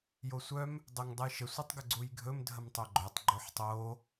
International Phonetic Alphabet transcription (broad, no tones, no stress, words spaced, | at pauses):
josʷœm | dˤoŋdˤəjʃə sʷətˤɡəɡ͡ǀujɡʱɵm dʱəmtˤœɡ͡ǃœtˤ ɡ͡ǃoħtˤo